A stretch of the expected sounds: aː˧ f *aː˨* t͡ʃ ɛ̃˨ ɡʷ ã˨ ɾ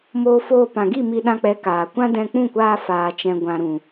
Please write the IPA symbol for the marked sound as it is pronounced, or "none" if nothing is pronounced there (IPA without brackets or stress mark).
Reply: aː˨